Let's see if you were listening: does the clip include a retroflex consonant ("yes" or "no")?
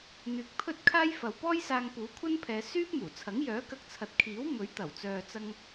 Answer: no